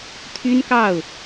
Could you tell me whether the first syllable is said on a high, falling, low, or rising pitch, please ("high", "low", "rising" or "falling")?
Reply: high